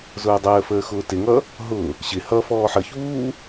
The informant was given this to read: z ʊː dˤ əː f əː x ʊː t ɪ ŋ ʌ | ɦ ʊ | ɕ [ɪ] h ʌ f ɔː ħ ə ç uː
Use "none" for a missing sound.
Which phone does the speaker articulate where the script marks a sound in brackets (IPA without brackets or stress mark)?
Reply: ɪ